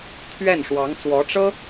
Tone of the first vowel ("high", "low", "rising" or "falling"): falling